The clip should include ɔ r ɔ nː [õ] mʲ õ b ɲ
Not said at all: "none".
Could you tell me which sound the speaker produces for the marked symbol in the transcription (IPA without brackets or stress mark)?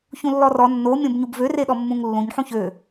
o